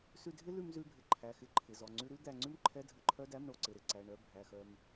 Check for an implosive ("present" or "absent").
absent